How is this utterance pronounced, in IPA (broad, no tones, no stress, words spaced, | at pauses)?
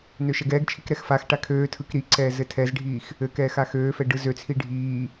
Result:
nøʃɛɡɛːɡt͡ʃʰik ɾɛxfaxʈa kʰøːtʰɯk ɾiǀɛː zɘtʰɛzɖʱiːx | ɘkɛːx axøːfɛ ɖɯzøt͡sʰi ɖʱiː